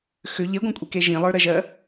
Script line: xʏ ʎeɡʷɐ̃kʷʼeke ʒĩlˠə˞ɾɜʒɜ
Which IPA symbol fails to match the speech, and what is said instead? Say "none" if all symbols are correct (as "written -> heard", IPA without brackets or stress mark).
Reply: none